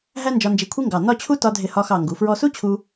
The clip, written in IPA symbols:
ɦ æ˥ n d͡ʒ ɒ˧ n d͡ʒ i˧˩ kʷʰ i˥ ŋ ɡ ɑ˧˩ n ɒ˥˧ t͡ɕʰ u˥ t ɒ˧ dʱ ɪ˧˩ h ɒ˧ x ɑ˧˩ ŋ ɡ u˩˧ f ɹ ɔ˧ s u˥ t͡ɕʰ u˧

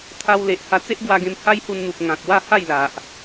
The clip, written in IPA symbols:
t̪ʰ a˧ w l e˨ ʔ h a˧ t͡s e˦ ʔ ɡ w a˧ ɡ ẽ˧ m h a˦ j h u˧ n n̪ u˨ p̚ ŋ ã˨ k̚ w a˥˧ h a˥˧ j l a˨ ʔ

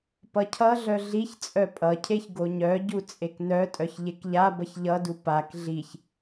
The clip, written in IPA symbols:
p ʌ cʰ ʌ ɮ œ ɮ i ç t͡sʼ œ pʼ ʌ cʰ e ç ɡ o ɲ œ ɟ u t͡sʼ e k n œ tʼ œ ç ʎ e k ʎ a b ʌ ç ʎ ʌ d u p a k ɮ i ç

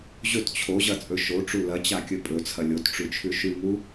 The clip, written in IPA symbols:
ʑ ɵ t t͡ɕʰ o ʑ ɐ t͡sʼ ɵ ʃ o ʈ͡ʂ u l ɐ t͡ɕ a kʲ ɵ pʼ ɵ t͡sʰ ɐ lʲ o t ʈ͡ʂ ʉ t͡ʃʰ ʉ ʃ ʉ ŋ u

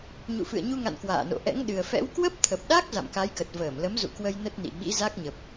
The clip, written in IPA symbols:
ɲ ṵ˧˨ f ɨ̰˧˨ ə̯ ɲ u˧ ŋ a̰˧˨ n k w a̰ː˧˨ n o̰˧˨ ʔ ɛ̰˧˥ ŋ ɗ ɨ˨˩ ə̯ f ɛ̰˧˥ w k w ə˦˥ p̚ t̪ʰ ə˨˩ p̚ ɗ a˦˥ k̚ z a̰˧˨ m k a˨˦ j k ə˨˩ t̚ v əː˧˩ m l ə˨˦ m z ṵ˧˨ k w ə˧ j n ə˦˥ t̚ n ḭ˧˨ ɓ ḭ˧˥ z a˦˥ k̚ ɲ ə˨˩ p̚

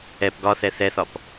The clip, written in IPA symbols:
ɛ p ɡ ɒ θ ɛ θ ɛ θ ɒ p

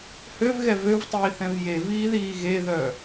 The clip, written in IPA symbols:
h ø v ɣ ɛ v ø v tˤ iː θ ɛ̃ v j e v iː ð iː ɣ e ð œː

